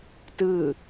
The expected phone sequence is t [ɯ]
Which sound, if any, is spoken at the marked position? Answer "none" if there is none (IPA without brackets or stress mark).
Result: ɯ